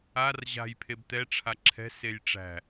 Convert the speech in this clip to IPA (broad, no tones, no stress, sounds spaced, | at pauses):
a r ʑ a̤ j pʰ e b t̪ ɛ ʈ͡ʂʰ a ǁʰ ɛ̤ s e j ʈ͡ʂ æ̤